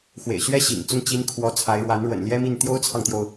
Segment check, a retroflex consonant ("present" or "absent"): present